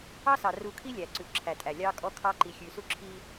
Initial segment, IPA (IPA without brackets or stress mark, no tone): ɑ